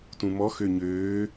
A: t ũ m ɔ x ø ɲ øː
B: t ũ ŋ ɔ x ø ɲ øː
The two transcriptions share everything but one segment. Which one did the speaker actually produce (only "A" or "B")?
A